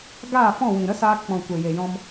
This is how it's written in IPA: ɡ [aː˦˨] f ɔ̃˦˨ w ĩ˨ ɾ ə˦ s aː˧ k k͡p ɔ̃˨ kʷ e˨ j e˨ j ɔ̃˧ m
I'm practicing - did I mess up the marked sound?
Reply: no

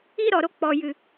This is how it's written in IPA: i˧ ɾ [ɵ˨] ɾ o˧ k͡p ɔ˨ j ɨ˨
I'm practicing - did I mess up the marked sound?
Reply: yes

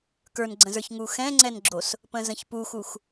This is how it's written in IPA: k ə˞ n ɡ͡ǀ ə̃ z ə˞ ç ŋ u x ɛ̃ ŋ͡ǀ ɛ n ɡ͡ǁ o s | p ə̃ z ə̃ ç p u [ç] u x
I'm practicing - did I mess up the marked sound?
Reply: yes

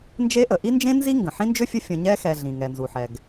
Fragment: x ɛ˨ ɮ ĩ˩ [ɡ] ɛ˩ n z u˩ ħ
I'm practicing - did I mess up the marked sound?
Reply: yes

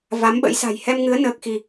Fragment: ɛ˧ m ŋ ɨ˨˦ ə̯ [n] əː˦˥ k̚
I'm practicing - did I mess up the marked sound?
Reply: no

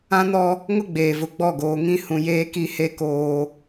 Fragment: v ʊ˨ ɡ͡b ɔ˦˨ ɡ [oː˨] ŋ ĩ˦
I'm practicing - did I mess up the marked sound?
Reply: no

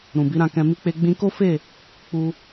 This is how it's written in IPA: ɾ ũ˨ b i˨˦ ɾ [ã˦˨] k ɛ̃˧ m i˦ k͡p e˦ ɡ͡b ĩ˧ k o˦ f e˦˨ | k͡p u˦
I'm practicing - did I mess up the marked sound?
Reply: no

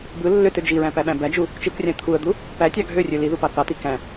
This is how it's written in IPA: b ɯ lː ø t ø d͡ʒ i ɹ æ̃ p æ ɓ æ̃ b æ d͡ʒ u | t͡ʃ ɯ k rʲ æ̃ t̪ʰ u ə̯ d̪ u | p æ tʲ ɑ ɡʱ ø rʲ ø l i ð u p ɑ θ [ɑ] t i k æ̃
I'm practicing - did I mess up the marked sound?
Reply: no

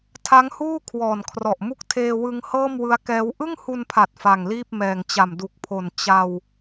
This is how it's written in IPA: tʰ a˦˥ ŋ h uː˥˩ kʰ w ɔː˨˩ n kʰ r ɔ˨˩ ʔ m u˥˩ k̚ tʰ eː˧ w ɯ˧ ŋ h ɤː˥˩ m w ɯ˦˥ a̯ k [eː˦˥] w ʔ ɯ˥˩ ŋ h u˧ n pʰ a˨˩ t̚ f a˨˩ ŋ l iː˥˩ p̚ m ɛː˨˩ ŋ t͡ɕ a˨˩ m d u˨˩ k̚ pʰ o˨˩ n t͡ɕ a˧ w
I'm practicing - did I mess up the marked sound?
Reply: yes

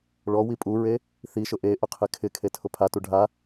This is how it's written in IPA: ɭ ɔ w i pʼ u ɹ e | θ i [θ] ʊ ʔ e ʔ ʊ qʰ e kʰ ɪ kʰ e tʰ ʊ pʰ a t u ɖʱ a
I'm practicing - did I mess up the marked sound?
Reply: yes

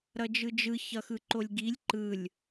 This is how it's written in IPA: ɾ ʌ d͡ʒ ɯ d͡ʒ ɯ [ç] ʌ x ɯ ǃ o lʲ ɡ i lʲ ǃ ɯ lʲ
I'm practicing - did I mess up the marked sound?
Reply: no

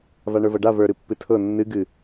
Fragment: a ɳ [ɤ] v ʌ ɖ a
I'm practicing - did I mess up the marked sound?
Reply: yes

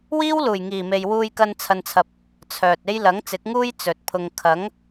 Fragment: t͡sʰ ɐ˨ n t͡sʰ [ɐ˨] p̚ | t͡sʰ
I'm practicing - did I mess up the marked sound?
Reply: no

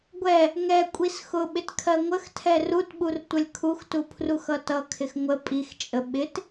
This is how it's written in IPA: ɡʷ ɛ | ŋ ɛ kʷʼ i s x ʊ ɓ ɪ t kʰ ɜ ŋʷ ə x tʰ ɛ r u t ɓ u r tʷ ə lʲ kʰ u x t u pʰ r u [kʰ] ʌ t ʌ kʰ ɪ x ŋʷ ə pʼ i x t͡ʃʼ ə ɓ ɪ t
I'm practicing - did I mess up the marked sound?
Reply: yes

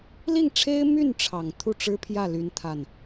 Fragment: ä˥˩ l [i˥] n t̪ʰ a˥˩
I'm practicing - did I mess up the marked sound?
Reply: yes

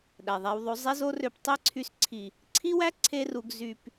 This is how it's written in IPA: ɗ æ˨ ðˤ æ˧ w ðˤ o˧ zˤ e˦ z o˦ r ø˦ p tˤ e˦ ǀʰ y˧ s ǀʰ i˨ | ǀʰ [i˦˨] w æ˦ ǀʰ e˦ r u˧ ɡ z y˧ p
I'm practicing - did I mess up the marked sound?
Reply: yes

